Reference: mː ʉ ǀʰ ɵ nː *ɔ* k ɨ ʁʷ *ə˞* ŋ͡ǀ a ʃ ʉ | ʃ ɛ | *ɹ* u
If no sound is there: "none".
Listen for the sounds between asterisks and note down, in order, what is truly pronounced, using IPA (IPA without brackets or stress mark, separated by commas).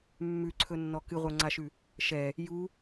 ɔ, ə˞, j